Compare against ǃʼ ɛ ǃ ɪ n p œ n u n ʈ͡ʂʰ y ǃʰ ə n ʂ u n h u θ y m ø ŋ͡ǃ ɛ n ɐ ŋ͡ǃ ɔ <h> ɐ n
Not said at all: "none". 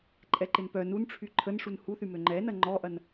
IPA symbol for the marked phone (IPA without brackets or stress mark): ʔ